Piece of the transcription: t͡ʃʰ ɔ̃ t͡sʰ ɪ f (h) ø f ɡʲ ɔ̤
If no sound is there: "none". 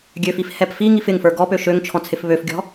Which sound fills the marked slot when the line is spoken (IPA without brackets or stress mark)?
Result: β